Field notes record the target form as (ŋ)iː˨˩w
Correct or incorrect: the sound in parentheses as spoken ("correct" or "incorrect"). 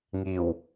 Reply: correct